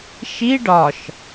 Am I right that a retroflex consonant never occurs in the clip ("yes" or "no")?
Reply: no